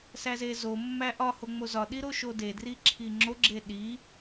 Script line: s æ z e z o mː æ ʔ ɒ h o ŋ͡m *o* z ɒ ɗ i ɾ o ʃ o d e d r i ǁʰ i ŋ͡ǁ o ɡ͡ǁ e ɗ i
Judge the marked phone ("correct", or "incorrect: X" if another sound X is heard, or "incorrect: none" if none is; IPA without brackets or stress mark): correct